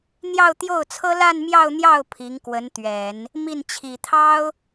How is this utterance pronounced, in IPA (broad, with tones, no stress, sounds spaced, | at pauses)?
n̪ j ɑ˥˧ ʊ̯ t̪ j o˥˩ ʊ̯ t͡sʰ ɤ˥ l a˥˧ n m j ɑ˥˧ ʊ̯ n̪ j ɑ˥˩ ʊ̯ pʰ i˧˥ ŋ k w ə˧˥ n t̪ ɥ ɛ˨˩˦ n | m i˥˩ n t͡ɕʰ i˨˩ t̪ʰ ɑ˥ ʊ̯